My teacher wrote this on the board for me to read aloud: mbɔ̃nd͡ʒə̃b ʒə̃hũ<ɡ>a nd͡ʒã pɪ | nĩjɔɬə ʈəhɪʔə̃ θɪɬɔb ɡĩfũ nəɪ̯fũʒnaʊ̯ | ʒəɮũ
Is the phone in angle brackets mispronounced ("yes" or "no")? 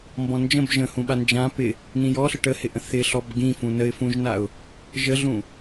yes